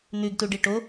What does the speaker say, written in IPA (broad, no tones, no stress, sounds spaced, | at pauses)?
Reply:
n̪ ʉ ɡ t u ɖ i ʈ o